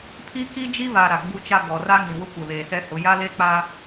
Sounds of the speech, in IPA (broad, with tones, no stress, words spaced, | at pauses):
pʰi˦ki˦d͡ʒi˦ βa˨ ɾa˨ɡ͡bu˦t͡ʃa˦ ɡɔ˨ra˦ ŋĩ˨wʊ˦ kʷɛ˨βeː˨sɛ˦hʊ˨˦ ja˦le˦k͡pa˦